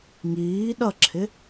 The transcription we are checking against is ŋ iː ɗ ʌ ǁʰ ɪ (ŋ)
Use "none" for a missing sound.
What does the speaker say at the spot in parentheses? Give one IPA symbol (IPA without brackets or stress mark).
none